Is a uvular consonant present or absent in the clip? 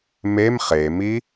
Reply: present